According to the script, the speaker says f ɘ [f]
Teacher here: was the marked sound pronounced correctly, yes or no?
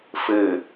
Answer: no